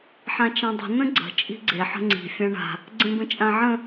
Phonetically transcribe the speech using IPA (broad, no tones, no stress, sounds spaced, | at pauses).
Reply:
ħ ã t͡ʃ ã dˤ ə̤ n ə̃ ɡ͡ǀ ə̤ t͡ʃʼ i̤ ɡ͡ǀ e ħ ə̤ ŋ͡ǀ i̤ fʲ ã ɳ a̤ | ɡ͡ǀ ẽ b ə̃ t͡ʃʼ ã ʕ ə̃